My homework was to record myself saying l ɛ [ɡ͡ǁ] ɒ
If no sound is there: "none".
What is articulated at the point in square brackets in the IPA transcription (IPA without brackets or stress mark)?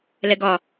ɡ